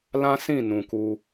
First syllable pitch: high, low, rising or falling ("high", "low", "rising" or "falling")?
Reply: high